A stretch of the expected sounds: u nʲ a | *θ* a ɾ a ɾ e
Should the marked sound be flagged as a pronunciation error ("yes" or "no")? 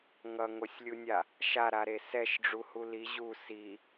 yes